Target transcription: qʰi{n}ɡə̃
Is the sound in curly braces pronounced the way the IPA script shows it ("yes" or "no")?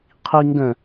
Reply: no